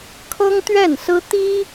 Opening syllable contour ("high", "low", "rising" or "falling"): high